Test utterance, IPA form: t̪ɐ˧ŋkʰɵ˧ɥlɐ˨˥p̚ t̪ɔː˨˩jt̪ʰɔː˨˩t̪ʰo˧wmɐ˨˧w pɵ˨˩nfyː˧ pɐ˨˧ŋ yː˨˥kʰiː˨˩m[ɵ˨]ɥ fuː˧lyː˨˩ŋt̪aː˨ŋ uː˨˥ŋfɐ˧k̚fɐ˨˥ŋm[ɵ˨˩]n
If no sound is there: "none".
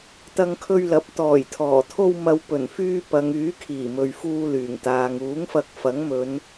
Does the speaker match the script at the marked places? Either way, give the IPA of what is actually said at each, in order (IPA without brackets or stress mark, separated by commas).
ɵ˨, ɵ˨˧